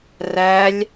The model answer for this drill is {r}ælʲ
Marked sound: correct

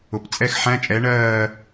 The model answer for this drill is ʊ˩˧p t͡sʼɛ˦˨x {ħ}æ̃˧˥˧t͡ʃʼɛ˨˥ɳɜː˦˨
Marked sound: correct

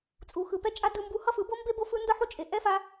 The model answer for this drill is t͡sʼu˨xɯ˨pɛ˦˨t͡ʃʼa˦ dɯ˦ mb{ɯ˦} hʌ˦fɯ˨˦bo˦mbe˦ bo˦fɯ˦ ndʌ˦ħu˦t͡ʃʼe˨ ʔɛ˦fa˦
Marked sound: incorrect: u˦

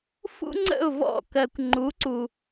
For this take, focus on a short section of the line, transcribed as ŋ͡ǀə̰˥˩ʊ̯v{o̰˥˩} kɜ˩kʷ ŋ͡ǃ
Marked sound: incorrect: ɔ̰˥˩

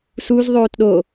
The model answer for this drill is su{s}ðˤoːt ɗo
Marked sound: incorrect: z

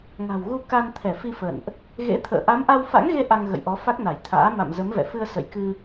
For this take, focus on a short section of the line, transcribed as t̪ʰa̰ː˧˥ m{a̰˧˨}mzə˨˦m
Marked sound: correct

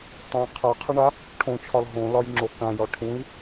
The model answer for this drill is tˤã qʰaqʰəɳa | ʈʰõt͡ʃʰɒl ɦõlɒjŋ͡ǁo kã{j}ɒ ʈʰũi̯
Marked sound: correct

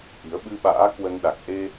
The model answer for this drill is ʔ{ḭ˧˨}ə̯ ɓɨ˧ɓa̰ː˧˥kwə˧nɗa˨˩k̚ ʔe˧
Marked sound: incorrect: i˨˦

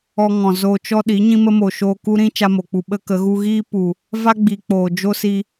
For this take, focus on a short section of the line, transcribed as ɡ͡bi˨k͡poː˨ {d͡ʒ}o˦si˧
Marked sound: correct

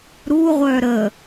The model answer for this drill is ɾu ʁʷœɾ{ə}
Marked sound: correct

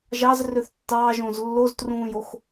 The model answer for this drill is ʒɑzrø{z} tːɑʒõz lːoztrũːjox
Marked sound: incorrect: θ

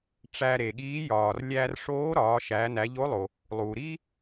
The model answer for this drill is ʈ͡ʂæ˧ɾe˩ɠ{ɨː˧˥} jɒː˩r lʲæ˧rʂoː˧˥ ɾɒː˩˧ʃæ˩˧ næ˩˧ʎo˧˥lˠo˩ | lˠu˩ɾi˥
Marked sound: incorrect: iː˧˥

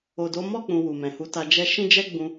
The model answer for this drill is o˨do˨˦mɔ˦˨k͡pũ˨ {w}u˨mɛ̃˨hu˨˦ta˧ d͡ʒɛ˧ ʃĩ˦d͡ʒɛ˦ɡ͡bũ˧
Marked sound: correct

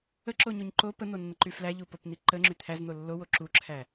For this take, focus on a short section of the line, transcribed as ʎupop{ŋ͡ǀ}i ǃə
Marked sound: incorrect: n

